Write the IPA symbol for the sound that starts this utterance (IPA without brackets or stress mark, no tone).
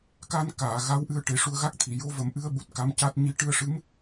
k